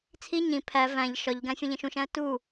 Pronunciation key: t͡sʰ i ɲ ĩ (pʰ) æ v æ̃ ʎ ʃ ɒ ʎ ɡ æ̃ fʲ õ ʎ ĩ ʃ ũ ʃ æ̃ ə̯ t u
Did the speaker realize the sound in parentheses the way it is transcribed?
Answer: yes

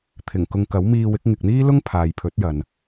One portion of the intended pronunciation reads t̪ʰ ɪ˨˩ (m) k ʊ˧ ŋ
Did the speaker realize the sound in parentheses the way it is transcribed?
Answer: no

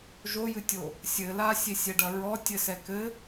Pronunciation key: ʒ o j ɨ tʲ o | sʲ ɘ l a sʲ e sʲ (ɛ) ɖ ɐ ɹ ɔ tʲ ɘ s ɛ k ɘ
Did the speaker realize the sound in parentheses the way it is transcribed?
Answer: yes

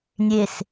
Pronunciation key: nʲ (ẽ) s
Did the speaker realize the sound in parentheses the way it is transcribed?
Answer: no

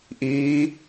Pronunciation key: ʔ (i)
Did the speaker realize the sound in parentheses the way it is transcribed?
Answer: no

